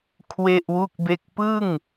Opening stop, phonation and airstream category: aspirated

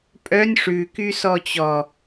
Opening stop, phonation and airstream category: ejective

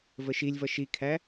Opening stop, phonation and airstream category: aspirated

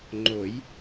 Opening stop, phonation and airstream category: click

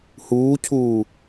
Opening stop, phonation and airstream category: aspirated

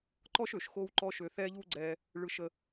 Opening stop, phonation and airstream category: click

